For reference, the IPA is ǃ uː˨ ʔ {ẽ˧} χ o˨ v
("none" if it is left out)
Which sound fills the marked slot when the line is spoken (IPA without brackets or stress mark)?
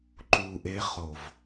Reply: e˧